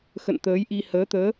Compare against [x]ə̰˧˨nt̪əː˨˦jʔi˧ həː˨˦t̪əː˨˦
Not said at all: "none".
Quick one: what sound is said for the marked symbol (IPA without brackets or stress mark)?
x